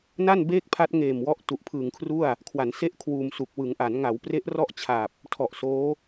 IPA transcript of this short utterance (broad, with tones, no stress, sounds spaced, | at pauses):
n a˥˩ n b eː˥˩ k̚ pʰ a˦˥ t̚ ŋ eː˨˩ m w ɔ˦˥ ʔ t u˨˩ ʔ pʰ ɯː˨˩ ŋ kʰ r u˥˩ a̯ | kʰ w a˩˦ n s e˦˥ ʔ kʰ w uː˧ m s u˨˩ k̚ w ɯ˩˦ ŋ ʔ a˩˦ n ŋ a˩˦ w p r e˦˥ ʔ r ɔ˥˩ ʔ t͡ɕʰ aː˨˩ p̚ | tʰ ɔ˨˩ ʔ s oː˦˥